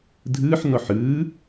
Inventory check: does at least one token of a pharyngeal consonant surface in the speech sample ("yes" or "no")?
yes